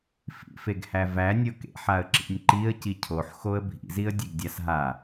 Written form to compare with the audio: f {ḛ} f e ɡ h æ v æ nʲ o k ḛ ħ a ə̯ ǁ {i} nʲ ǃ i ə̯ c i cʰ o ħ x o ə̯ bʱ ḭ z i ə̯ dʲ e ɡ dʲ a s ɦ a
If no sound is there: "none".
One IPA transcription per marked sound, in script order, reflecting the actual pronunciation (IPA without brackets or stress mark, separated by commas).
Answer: ḭ, ḭ